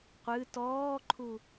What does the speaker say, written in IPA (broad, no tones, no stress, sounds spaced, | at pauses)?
qʷ ɨ t ɔː ǃʰ u